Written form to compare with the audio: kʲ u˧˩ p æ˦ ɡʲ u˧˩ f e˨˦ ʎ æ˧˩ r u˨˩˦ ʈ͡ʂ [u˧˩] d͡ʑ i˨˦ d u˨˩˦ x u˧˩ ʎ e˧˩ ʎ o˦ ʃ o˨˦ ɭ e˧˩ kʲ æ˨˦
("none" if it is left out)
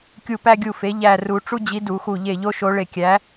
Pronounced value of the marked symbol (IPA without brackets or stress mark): u˦